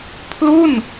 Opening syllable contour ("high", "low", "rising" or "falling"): falling